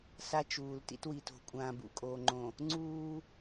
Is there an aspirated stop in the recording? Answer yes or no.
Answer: no